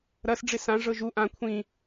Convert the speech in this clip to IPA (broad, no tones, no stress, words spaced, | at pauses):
ɾɐs ɖ͡ʐɪsã ʐɤʒu ʔã kʷʰĩ